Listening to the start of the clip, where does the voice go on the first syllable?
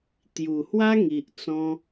low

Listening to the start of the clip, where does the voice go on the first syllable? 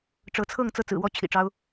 rising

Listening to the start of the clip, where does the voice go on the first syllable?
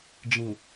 low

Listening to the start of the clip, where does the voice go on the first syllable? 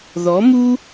rising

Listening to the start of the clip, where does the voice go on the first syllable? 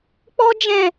high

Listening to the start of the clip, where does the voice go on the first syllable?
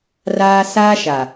high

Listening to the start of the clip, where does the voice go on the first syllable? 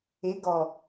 rising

